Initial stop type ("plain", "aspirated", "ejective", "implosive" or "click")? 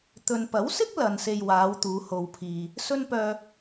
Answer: plain